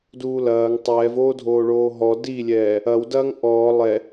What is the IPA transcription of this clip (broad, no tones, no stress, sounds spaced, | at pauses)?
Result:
d uː l ɐː ŋ tˤ ɛː v oː dʱ oː ɭ oː ɦ ɔ d i lʲ ɛː | ɐ w d ɐː ŋ ʔ ɔː lˠ ɛ